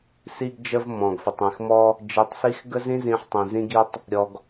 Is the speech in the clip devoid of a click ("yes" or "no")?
yes